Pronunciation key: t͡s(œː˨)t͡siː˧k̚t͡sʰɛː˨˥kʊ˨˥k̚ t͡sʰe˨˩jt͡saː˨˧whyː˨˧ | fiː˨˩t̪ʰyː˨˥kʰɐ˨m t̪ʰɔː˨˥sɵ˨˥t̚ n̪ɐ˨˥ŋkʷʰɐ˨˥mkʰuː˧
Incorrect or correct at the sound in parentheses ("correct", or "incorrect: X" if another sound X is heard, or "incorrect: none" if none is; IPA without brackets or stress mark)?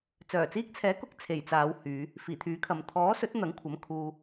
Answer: incorrect: œː˨˩